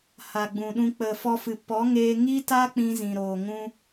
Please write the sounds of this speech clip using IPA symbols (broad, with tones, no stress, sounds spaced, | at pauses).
h a˨ ɡ͡b ũ˨ ɗ ũ˧ k͡p ə˨ f ɔ˧ f ɨ˨ p ɔ˨˦ ŋ eː˧ ŋ i˦ t a˦ k͡p ĩ˧ z ĩ˨ ɾ oː˨ ŋ ũ˧